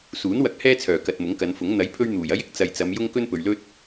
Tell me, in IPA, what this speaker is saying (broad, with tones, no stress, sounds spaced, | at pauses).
s uː˨˥ n w ɐ˨˥ k̚ h ɛː˥ t͡sʰ œː˨˩ k ɐ˨ t̚ m ʊ˨˥ ŋ k ɐ˨˧ n f ʊ˨˥ ŋ n̪ ɐ˨˥ j pʰ ɵ˧ ɥ n̪ uː˨˩ j ɐ˥ j ɪ˥ k̚ t͡s ɐ˨ j t͡s ɐ˨˧ m j ʊ˧ ŋ k ɵ˥ n p ɵ˨ ɥ l ɵ˥ t̚